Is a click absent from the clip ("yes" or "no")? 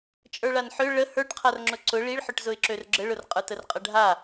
no